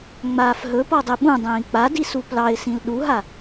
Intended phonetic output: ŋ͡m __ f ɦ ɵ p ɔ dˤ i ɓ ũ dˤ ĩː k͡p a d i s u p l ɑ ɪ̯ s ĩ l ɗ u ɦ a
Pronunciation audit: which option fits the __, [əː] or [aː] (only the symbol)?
aː